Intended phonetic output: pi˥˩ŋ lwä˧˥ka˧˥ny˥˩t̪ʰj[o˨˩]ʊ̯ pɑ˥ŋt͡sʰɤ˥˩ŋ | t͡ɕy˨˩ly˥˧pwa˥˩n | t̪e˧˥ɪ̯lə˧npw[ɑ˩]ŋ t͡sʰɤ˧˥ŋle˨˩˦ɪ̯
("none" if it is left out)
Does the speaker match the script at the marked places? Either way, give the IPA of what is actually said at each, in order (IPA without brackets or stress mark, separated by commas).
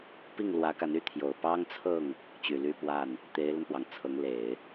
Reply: o˨˩, ɑ˩